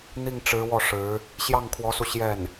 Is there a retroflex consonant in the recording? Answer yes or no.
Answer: yes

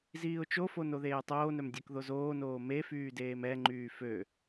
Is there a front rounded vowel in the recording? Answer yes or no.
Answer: yes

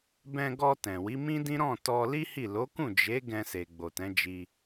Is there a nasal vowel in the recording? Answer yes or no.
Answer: yes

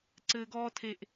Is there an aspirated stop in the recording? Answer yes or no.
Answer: yes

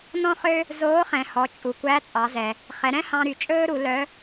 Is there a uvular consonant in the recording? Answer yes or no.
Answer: yes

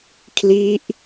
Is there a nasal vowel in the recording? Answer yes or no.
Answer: no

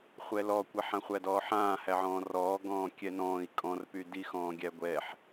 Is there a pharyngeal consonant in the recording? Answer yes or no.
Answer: yes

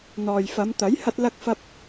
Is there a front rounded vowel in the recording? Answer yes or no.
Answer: no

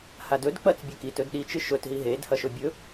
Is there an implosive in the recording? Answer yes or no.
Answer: yes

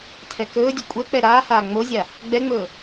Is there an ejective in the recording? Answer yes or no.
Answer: yes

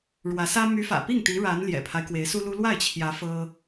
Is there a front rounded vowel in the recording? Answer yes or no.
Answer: yes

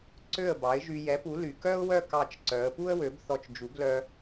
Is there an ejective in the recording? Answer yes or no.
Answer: no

